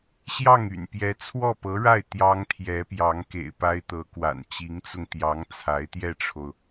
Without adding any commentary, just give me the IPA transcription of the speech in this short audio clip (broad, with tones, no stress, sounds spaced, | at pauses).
ɕ j ɑ˥˩ ŋ y̰˨˩ n p j ɛ˧˥ t͡sʰ w ɔ˥˩ p ɤ˧˥ ɻ a˥˩ ɪ̯ t̪ j ɑ˥ ŋ t̪ʰ j ɛ˧˥ p j ɑ˧˥ ŋ k ḛ˨˩ ɪ̯ p a˥ ɪ̯ t̪ ɤ˧˥ k w a̰˨˩ n t͡ɕ i˧˥ ŋ t͡s ʊ˧ ŋ t̪ j ɑ˧˥ ŋ t͡sʰ a˧˥ ɪ̯ t̪ j ɛ˥˩ ʈ͡ʂʰ o˩ ʊ̯